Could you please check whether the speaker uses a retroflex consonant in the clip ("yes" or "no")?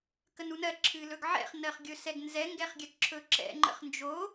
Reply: no